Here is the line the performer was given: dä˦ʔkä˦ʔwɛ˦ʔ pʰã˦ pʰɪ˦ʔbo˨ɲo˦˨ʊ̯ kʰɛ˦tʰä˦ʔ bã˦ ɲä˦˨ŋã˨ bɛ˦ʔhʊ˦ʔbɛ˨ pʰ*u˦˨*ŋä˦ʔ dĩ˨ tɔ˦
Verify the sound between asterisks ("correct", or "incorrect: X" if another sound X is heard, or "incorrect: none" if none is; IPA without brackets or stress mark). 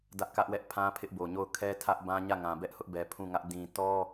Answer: incorrect: ũ˦˨